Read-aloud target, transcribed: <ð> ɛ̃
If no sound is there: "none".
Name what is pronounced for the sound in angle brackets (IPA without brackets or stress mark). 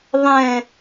ðˤ